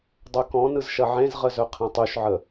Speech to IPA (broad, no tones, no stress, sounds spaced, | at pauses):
dˤ œ k ɔ̃ n ɯ z ʃ ɐ ʕ ẽ z ʁ ə z œ qʰ ẽ tˤ ʉ ʃ ʕ ə